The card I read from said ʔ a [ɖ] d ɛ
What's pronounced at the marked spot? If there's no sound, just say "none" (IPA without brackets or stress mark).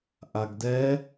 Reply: ɡ